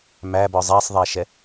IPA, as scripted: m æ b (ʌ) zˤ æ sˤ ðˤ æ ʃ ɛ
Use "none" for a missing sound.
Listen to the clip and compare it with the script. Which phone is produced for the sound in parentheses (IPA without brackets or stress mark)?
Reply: ɔ